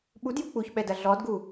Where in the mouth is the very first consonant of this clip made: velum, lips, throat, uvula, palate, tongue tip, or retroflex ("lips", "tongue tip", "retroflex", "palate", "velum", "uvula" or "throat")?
lips